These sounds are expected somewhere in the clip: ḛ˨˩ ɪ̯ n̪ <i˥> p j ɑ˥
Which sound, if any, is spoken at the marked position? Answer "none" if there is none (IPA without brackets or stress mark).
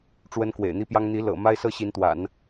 i˥